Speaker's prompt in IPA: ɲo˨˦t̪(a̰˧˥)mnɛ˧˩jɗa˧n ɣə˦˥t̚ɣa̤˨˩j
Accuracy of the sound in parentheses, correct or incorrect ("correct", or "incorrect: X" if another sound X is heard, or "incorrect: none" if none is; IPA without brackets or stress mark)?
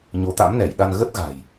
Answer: correct